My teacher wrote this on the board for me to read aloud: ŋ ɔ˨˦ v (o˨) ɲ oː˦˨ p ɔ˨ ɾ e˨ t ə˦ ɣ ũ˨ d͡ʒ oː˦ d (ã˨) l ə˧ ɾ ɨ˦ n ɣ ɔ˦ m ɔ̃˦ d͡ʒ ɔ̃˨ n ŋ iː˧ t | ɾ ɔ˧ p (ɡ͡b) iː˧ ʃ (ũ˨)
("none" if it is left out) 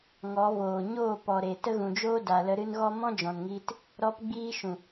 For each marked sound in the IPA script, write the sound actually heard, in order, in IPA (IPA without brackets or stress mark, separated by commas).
oː˨, a˨, ɡ͡b, ũ˨